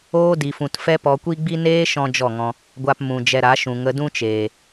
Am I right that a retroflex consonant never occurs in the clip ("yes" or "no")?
yes